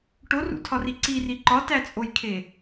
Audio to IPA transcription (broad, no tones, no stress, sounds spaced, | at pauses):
ʈ o r ṵ tʰ ɒ r i ǀ i r i ǃ ɒ t æ t͡sʼ o j kʰ e